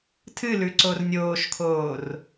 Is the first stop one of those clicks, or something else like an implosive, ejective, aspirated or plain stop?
aspirated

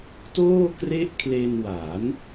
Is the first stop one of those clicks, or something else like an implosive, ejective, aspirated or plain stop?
plain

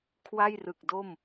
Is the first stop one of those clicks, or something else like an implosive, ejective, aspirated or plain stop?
aspirated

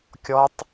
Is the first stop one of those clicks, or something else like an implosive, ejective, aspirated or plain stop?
plain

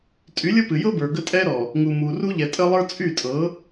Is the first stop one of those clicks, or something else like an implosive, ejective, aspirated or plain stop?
ejective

